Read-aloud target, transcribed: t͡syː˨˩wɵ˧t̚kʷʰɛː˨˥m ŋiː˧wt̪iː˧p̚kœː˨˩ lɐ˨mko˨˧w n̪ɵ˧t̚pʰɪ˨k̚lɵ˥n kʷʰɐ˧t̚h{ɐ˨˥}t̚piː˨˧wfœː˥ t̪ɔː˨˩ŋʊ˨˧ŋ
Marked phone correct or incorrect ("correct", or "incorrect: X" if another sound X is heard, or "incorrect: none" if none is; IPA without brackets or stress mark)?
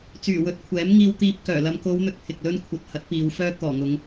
correct